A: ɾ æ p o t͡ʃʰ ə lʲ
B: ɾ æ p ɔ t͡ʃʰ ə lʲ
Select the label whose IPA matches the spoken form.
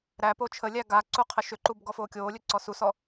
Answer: A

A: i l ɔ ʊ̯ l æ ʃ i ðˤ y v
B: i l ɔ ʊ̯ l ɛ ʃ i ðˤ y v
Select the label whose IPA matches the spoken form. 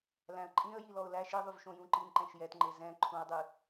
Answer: A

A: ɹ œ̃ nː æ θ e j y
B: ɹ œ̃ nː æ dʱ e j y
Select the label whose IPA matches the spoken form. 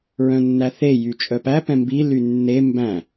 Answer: A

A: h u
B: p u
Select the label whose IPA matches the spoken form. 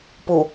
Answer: B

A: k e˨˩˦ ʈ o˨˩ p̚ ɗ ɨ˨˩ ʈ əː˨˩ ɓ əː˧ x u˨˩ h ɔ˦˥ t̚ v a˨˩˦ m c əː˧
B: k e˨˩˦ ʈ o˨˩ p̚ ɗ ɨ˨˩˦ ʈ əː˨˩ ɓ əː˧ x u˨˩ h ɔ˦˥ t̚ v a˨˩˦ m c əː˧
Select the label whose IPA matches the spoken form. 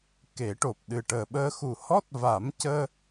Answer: A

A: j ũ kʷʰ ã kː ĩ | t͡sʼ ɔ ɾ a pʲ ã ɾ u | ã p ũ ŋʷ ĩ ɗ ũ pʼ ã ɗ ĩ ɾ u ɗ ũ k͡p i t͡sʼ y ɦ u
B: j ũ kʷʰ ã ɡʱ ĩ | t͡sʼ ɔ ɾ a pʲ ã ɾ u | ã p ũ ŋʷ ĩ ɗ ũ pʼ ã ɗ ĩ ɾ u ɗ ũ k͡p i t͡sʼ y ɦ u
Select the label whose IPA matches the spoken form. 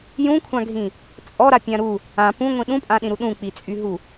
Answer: B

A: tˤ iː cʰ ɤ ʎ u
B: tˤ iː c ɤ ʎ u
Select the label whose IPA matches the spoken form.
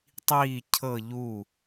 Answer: A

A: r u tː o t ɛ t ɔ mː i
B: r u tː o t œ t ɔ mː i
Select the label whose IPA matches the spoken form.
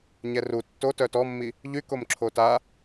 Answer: B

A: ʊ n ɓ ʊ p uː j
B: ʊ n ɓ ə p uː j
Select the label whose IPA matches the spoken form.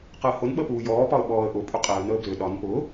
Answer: B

